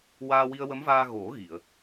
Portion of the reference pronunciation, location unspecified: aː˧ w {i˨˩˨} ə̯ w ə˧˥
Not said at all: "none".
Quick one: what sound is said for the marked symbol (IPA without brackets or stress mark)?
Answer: i˧